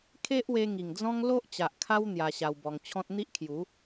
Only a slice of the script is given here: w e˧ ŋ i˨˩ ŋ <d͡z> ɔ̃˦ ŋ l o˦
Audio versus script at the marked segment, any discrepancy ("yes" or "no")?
no